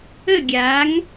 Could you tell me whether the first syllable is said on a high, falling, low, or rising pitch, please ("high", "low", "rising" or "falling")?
falling